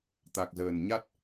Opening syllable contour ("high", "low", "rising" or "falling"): low